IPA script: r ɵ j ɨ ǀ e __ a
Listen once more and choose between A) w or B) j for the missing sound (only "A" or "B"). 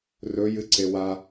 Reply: A